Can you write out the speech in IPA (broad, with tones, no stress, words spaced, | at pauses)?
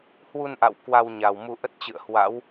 hwu˧nʔa̰˧˨w kwa˧wɲa˨˩wmu˧ ʔə˦˥t̚t͡ɕɨ̰˧˨ə̯ hwa̰˧˥w